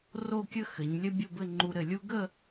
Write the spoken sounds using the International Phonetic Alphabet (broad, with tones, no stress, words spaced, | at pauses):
ro˥˧kʲə˥ xɘ˩˧ɲ lʲɘ˥bʲo˥˧bɘ˥˧ ŋ͡ǃu˧ɾɘ˧˩lʲu˥ ɡə˥˧